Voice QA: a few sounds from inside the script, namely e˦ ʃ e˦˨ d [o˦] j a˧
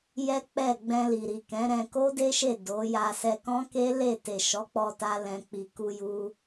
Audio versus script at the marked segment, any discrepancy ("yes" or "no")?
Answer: yes